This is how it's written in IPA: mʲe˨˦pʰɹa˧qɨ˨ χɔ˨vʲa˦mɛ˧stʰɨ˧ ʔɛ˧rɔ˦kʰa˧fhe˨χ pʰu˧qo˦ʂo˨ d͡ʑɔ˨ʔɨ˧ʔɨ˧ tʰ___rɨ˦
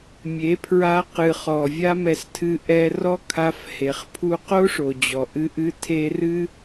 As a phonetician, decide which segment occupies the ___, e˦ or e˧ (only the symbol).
e˧